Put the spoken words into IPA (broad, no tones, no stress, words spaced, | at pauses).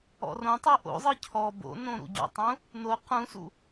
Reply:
ɔ̰rõtˤɯ ʔo̰zˤɯ cʰɔ bo̰nõ ɾṵɟɔ̰tˤũ | no qũsṵ